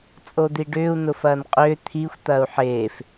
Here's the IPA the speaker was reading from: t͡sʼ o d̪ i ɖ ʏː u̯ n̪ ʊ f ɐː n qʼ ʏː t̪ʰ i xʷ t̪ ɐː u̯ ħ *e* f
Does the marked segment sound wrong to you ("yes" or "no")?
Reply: yes